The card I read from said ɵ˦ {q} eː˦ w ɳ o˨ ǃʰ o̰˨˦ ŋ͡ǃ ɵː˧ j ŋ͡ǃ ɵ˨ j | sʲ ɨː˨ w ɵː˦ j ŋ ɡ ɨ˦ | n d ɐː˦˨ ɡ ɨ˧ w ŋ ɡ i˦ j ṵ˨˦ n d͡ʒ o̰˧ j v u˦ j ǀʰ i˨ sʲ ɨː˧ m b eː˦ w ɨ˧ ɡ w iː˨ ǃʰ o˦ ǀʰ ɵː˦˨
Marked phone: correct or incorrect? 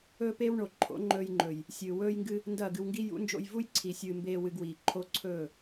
incorrect: p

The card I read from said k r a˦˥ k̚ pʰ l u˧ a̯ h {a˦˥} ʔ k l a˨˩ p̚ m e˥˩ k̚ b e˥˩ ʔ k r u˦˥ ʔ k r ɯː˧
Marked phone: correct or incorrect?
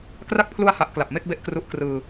correct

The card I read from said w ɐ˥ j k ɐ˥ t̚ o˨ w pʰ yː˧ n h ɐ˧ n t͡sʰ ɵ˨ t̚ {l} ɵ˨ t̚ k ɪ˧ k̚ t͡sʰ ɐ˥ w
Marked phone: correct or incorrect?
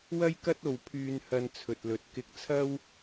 correct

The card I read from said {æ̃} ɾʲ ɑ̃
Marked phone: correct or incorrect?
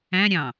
correct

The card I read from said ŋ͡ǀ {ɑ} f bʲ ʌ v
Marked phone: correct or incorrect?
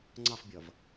correct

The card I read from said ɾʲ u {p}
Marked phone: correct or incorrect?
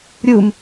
incorrect: m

